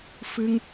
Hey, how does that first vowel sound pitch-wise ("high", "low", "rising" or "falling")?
high